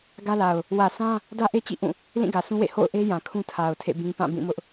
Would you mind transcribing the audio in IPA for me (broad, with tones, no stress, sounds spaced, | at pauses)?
ɡ ä˦ l a˨ ʊ̯ | w ä˨ sʰ ã˦ | d ä˦ ʔ e˦ t͡ɕ ḭ˦˨ ʔ ũ˦˨ | l ĩ˦˨ ɡ ä˨ s ũ˦ w ḛ˦˨ h o̰˦˨ ʊ̯ ʔ e˦ j ã˨ kʰ ũ˦ tʰ a˨ ʊ̯ tʰ ḛ˦˨ b ĩ˦ p ã˦˨ b ĩ˦˨ m ʊ˦ ʔ